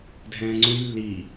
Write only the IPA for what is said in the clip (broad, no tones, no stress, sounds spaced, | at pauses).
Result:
dʱ ɛ̃ː ŋ͡ǀ ũ j lː i